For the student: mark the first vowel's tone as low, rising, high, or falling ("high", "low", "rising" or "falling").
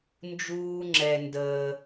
low